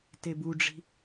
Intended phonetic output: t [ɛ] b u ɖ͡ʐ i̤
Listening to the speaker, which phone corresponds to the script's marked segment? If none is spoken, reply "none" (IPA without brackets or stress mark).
e